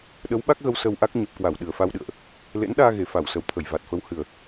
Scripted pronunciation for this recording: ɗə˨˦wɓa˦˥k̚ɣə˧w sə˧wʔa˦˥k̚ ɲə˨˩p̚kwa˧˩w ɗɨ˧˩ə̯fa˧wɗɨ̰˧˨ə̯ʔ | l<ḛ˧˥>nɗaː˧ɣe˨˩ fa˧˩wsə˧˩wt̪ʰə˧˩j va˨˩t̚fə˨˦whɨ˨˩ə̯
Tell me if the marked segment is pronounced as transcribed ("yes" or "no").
yes